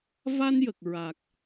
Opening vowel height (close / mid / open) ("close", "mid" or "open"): open